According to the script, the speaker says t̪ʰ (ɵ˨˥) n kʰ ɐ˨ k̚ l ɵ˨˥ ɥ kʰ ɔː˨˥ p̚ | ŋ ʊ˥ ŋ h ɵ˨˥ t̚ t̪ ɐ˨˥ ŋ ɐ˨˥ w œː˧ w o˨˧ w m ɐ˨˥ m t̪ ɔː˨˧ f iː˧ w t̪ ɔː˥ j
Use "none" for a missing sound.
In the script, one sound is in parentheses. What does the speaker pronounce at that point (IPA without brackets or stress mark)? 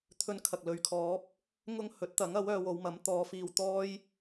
ɵ˧